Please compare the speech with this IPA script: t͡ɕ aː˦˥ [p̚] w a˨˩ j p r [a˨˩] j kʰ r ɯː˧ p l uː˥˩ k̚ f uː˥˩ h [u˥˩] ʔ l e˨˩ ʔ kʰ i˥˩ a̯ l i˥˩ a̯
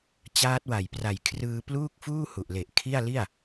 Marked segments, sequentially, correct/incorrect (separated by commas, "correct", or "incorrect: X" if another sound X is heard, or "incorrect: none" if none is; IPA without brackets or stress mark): incorrect: t̚, correct, incorrect: u˨˩